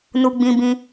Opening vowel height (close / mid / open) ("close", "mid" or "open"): close